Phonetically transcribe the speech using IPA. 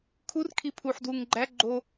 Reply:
kʰur kʰipʰuħ dwuŋɡ͡ǃæ ɡ͡ǃo

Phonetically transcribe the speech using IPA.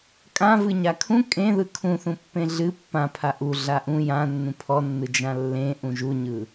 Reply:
kʼãvɨ ɲakʰũ kʼẽðɯ kʰũθũpːẽ ɮɨ pːãpʰa ʔu ɮaʔũ jã nːũpʰɔnːɯ d͡ʒãlːẽʔũ ʒuɲɯ

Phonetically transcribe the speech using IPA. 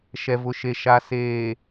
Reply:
ʃɛ˨vʊ˨ʃe˨ ʃa˨ seː˨

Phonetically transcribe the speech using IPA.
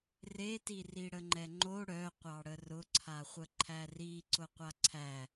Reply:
reti riɽəŋ͡ǃɛŋ͡ǃo ɽœqʷɑɽə rʊǀʰaχʷə ǃʰæri ǀʊqʷaǀʰæ

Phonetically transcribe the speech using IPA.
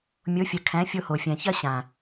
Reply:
mʲo˨˦fʲə˨ kʰæ̃˨˦fʲo˧ho˨fʲæ̃˨ çɐ˦ɕã˨

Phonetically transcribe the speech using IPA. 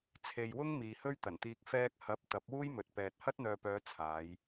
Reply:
t͡sʰe˨jwʊ˥ŋ miː˨hɵ˥ɥt̪ɐ˨˩nt̪iː˧k̚ fɛː˧k̚hɐ˨˥p̚ t̪ɐ˨˥p̚wuː˥jmɵ˨t̚ pɛː˨t̚ hɐ˥t̚n̪œː˨pœː˨˧ t͡sʰaː˨˧j

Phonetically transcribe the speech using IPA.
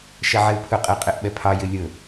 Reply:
ʃɛʕeu̯pʰɵqʼɛ qʼeʔɓɛpʰɑjɪ lʲɵ

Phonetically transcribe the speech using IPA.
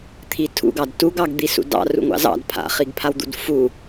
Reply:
t̪ʰitʰṵɡɑd tuɡɑɡ d̪isṵdɑ̰ rṵŋʷɑ̰zɑ̰d pʰa̰χiɡpʰawd̪ṵd fu

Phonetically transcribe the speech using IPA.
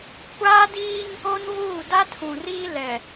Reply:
kʷaː˦diː˦ŋ | o˦nvuː˦˨ da˦tʰũ˨riː˦ lɛ˨

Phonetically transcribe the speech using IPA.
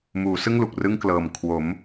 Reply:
muː˩˦sɯ˥˩ŋlu˨˩k̚ rɯ˥˩ŋ klɤː˨˩m kʰwo˩˦m

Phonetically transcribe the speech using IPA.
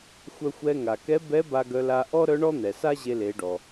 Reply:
xʷœ˧xʷɛ˧ ŋa˩kɛ˧˥bɛ˧˥ ba˧ɡœ˧la˧ ʔɔ˥ɾœ˧˥ɳɔ˥n̪ɛ˩ sa˥ʑe˧le˩˧ɖɔ˩

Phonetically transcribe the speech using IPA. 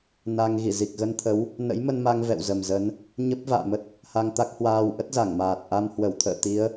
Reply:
na˧ŋ ɣi˧˩zi˨˩k̚ɣə˧nt̪ʰə˨˦w | nə̰˧˥jmə˧nma˧ŋ vɛ̰˧˨w zə˨˩mzə˨˦n | ɲə˦˥p̚ va̰ː˧˨mə˦˥t̚ | ha˧ŋt̪a˦˥k̚hwaː˧w ʔə˦˥t̚za˧˩ŋmaː˨˩t̚ ʔa˧mhwə˧˩wt̪ʰə̰ː˧˨t̪i˨˦ə̯

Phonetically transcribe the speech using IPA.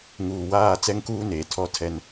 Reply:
ŋuː˨waː˦˨ t͡sɛ˦ŋkuː˦ neː˨tʰɔ˦tʰɛ˦n

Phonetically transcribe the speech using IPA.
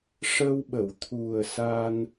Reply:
ʂə˧wɓə˨˩˨wt̪ʰu˨˩ə̯ sa˧n

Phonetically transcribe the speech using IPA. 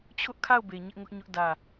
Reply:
t͡ɕʰʊ˦ʔkʰa˦˨ʊ̯be˨ ɲɪ˦ʔŋʊ˦ʔɲʊ˦ʔ dä˦˨

